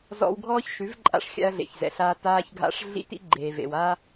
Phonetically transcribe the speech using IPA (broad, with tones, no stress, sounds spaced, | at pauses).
z ɔ̰˧ w ɡʱ ɔː˦ ç ʃ ʉ˨˦ v ǃʼ a̰˧ ʂ xʲ a̰˧ ɐ̯ ɮ ḛ˨ ç z ɛ̰˨ ɬ aː˧ t aː˧ ç ɡʱ a̰˧ ʂ ɮ ḭ˦ t ḭ˦ ɡ͡ǃ eː˨ v ḛ˨ w a˦